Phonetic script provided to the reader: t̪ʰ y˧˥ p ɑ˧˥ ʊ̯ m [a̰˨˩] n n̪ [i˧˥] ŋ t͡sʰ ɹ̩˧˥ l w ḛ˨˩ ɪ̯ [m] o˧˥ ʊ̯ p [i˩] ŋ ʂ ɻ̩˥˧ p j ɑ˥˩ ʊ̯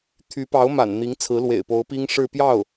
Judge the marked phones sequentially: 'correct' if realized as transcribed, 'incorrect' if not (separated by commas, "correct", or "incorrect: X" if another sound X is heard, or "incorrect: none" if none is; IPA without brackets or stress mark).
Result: correct, correct, incorrect: p, incorrect: i˥